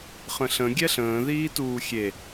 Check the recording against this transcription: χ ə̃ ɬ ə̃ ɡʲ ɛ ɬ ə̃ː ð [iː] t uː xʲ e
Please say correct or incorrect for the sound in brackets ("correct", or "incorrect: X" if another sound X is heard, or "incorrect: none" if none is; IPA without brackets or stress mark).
correct